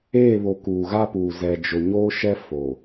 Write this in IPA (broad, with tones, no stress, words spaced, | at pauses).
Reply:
eː˦˨βo˨ kuː˨ɣa˦puː˨ zɛ˨d͡ʒʊ˨ ɲoː˦ʃɛ˦ fo˨